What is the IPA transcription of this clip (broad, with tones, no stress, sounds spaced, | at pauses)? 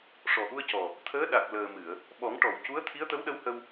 ʂ ɔ˨˩ ʔ u˧ ə̯ c ɔ˨˩ | t̪ʰ əː˧˥ ɗ a˨˩ k̚ l əː˨˩ m ɨ˨˩˨ ə̯ | ɓ ɔ˨˩˦ ŋ ʈ ɔ˨˩˨ w c u˧˥ ə̯ t̪ʰ i˧˥ ə̯ t̪ ə˧˥ w ɗ ə˧˥ w h ə˧ w